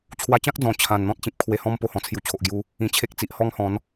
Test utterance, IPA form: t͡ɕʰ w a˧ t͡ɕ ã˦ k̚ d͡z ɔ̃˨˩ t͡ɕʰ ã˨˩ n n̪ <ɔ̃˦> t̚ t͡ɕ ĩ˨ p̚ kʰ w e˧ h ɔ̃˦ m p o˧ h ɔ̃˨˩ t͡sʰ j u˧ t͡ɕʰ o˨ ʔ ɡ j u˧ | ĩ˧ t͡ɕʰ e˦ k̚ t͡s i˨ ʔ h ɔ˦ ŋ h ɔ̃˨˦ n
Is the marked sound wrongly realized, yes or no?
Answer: no